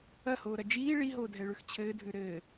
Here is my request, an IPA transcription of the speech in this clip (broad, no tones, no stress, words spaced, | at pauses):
ɐhoːɾɐ d͡ʒiː ɭiɦoːdʱɛɭʉx t͡ɕʰɘːdʱʉ ɾɘː